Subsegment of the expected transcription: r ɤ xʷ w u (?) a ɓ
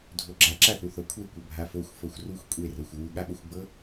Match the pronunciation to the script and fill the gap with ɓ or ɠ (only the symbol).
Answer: ɠ